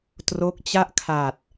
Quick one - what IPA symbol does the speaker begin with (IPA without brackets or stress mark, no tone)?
t